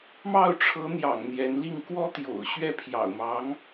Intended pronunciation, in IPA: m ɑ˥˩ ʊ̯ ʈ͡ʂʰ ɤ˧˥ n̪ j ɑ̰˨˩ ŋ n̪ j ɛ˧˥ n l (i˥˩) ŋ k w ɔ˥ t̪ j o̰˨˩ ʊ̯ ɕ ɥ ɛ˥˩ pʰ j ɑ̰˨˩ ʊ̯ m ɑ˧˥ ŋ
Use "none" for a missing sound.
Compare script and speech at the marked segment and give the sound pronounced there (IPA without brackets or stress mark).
i˥˩